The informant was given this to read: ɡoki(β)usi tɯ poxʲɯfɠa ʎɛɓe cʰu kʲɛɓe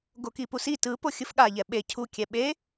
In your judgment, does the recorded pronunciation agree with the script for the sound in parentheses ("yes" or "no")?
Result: no